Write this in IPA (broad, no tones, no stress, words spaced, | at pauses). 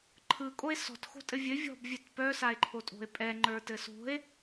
ǃʰɯkʼoe̯ sɔ̤txo̤tʼɘ vʲɘ vʲɔ̤bvʲœt pœsae̯ǃʰotʼo̤e̯ pʼɛŋ͡ǃə˞tɘ so̤e̯